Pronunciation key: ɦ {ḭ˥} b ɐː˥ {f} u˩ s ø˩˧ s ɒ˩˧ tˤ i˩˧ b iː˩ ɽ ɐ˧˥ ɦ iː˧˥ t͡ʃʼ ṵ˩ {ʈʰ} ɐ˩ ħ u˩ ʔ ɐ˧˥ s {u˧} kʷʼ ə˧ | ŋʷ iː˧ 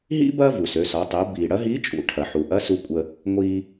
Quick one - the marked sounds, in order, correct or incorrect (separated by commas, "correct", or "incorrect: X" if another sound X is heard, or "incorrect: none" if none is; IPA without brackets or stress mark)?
correct, incorrect: v, correct, correct